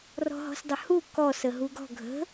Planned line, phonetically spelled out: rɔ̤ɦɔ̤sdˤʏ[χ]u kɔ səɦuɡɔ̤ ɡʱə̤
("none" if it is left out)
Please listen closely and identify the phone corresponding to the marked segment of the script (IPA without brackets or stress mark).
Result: h